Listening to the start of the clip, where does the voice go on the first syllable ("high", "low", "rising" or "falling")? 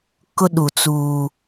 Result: high